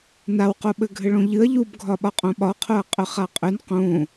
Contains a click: no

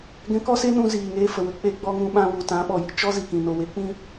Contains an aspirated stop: no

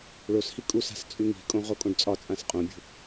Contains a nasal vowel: yes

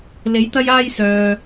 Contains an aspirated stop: no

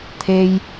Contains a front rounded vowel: no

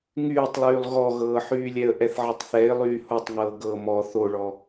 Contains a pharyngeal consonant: yes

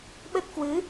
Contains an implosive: yes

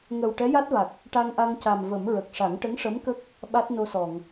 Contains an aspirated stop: no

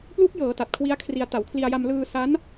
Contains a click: no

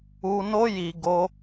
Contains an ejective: no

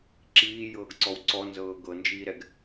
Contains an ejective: no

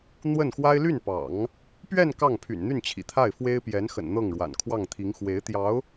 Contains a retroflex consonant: yes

